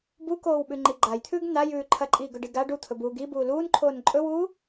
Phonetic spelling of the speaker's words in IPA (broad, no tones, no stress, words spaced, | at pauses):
bukoːw ɓʉŋ͡ǃiɡ͡ǃajt̪ʰʉːɡ najʉː ǃʰɐǃʼiːɡɵɖi ɡa ɖut̪ʰɵbuː ɡi buːluːnǃʰoːn ǃʼɵwuː